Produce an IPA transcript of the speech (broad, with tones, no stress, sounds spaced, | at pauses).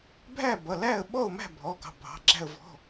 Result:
bʱ æ˥˨ b ʌ˩˧˩ l æ˥˨ ə̯ ɓ ɔ˥˨ ʊ̯ m æ̤˥˨ bʱ ɔ˩˧˩ ɡ ɑ̤˩˧˩ bʱ ɑ̤˩˧˩ ɡ͡ǁ æ̤˥˨ ə̯ v ɔ̤˩˧˩